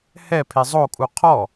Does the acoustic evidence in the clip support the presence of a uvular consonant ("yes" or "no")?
yes